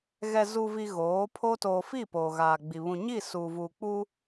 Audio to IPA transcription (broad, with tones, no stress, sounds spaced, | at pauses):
ɣ ɛ˨ z u˨ v i˨ ɣ oː˨˦ pʰ o˦ t oː˨ f i˦˨ p oː˨ ɣ aː˨ ɡ͡b i˨ β ũ˨ ɲ i˦˨ s uː˨ v uː˨ k͡p u˦